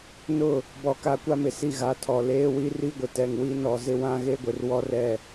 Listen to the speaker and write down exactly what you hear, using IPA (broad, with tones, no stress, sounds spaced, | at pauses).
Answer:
n ʊ˦˨ | b ɔ˦ k a˦ kʷ a˦ m ɪ˨ s i˦˨ ɣ a˨ tʰ ɔ˨ l eː˦ w i˦ r i˦ ɡʷ ɪ˨ t ɛ˨ ŋ w i˦ n ɔ˨ z ɪ˦ w ã˦ ɣ e˦ ɡʷ ɪ˨ r w ɔ˦ r ɛ˦˨